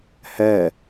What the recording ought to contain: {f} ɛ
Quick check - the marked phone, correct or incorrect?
incorrect: h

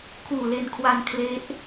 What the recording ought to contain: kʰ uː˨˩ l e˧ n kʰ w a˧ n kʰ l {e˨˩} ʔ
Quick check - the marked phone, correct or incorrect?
incorrect: e˦˥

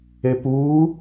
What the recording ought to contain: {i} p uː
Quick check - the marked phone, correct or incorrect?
incorrect: e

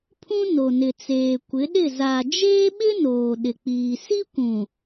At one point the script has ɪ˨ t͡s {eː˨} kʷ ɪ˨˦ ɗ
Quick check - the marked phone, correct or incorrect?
correct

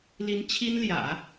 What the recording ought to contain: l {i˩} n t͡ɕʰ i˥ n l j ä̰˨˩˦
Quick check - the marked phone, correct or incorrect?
incorrect: i˧˥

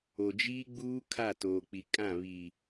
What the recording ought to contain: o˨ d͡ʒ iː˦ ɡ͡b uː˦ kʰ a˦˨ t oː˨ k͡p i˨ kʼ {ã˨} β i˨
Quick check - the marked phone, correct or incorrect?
incorrect: ã˦˨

